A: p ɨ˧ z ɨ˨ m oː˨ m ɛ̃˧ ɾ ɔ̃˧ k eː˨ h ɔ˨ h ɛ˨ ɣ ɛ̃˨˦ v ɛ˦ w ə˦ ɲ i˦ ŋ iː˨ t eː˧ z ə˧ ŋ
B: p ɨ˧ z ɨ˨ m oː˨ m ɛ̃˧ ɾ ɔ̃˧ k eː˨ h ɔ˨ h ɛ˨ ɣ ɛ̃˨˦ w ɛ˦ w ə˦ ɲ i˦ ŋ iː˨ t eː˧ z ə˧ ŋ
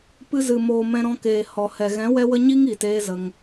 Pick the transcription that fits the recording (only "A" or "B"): B